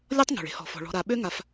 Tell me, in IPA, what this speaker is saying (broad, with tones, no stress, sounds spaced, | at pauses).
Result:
lʲ ɔ˥ tˤ ŋ o̤˩ ɭ e̤˦ h ɔ̤˩ f ɔ̤˩ ɭ ɔ̤˨ ɾ a˨ ɓ ø˥ ŋ a˨ f